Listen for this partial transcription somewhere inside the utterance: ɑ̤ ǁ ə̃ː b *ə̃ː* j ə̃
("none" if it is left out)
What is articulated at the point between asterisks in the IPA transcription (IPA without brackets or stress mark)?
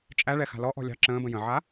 ə̃